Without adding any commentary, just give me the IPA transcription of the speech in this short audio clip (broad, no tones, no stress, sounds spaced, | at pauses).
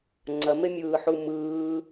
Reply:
ŋ͡ǀ ɐ m e mʲ ɯː ħ u m ɯː